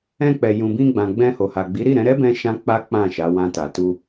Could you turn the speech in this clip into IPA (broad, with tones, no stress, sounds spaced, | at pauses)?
ɛ̃˧ k͡p ɛ˨ j ũ˨ b ĩ˧ ɡ͡b ã˨ ɡ͡b ɛ̃˧ h o˨ h a˨ ɡ͡b i˨˦ ɾ i˦˨ ɾ ɛ̃˨˦ ɾ ɛ˦ b ɛ̃˦ ʃ ã˦ k͡p a˦ k͡p ã˦˨ ʃ a˨˦ w ã˧ t a˨ t u˧